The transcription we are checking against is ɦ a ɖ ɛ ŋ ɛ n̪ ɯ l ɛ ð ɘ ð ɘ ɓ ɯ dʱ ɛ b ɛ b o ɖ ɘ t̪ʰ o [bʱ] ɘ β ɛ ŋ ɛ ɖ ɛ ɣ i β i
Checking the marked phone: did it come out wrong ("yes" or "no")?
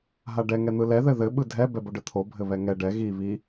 no